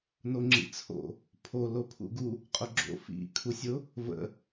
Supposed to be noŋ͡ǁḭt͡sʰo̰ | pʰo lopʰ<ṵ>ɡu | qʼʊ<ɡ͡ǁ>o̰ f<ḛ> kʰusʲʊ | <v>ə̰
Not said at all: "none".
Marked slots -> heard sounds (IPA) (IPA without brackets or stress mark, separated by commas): ṵ, ɡ͡ǁ, ḭ, v